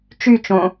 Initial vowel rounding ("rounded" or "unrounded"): rounded